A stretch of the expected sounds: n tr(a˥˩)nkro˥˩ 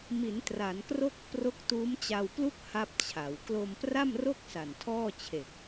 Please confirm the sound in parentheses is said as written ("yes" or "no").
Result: no